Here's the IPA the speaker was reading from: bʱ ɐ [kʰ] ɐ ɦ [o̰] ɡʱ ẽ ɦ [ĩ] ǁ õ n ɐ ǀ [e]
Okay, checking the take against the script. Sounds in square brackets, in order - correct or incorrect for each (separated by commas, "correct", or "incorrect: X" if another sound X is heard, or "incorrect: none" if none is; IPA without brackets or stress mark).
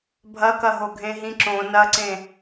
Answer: incorrect: k, incorrect: o, correct, incorrect: ẽ